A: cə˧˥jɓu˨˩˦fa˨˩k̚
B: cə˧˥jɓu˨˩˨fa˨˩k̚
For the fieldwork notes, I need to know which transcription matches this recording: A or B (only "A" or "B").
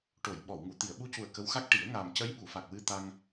B